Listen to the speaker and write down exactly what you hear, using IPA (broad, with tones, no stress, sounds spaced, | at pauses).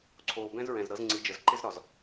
ǀʰ oː˨ b ɛ̃˦ z ɹ ɛ̃˨ z ɾ ɤ˨˦ z ŋ͡ǀ i˨˦ d͡ʒ ə˨˦ z ǃ ɪ˦ z ɾ ɒ˨ z